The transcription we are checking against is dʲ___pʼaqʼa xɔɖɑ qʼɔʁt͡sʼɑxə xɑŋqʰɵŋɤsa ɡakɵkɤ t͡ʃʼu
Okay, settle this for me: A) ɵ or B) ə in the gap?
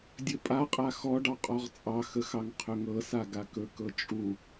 A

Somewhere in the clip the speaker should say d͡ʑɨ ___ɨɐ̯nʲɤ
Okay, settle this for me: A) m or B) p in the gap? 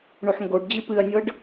B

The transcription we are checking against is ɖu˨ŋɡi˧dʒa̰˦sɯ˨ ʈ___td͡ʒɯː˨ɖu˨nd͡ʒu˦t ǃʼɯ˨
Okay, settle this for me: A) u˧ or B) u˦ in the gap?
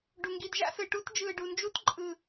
B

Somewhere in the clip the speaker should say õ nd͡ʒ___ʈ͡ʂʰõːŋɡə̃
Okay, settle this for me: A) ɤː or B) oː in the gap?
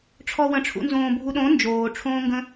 B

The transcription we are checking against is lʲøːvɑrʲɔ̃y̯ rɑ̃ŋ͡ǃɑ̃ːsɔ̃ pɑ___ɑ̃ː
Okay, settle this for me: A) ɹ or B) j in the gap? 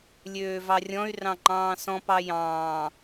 B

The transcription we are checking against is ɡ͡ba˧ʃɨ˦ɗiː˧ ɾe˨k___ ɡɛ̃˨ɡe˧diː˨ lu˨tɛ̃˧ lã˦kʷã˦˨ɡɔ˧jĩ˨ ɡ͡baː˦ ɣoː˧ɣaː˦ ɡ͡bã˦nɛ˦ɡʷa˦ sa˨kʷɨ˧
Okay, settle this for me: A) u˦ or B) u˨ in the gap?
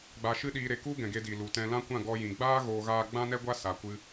A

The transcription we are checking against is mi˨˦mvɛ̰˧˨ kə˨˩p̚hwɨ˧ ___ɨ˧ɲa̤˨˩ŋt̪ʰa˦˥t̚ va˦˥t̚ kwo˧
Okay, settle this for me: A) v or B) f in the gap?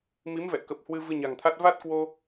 A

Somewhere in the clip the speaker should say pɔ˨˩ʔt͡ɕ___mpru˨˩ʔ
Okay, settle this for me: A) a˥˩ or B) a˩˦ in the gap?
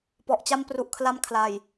A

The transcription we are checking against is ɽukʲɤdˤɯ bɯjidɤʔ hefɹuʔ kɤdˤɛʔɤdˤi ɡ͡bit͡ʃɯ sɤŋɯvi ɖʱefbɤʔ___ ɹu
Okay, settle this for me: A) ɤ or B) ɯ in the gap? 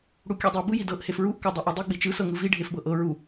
A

